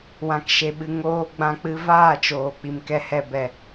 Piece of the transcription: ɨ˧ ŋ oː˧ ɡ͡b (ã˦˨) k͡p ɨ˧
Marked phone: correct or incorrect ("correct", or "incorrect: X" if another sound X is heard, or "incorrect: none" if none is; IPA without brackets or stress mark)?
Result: incorrect: ã˧